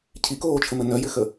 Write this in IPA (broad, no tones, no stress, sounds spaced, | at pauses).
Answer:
cʰ i k oː t͡ʃʰ ə m ɘ n œ j ɘ x ə